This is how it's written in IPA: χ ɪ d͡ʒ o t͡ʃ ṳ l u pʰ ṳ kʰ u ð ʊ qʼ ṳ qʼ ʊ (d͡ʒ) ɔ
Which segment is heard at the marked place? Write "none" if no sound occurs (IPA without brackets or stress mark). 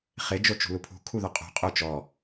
t͡ʃ